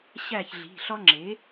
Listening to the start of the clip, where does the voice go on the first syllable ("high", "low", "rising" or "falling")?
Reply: falling